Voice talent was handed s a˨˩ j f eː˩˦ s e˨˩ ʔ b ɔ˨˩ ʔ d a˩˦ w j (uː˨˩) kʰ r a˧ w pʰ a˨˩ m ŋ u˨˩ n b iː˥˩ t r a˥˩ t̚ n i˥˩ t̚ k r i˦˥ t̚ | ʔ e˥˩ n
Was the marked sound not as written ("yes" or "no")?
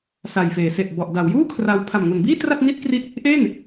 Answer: yes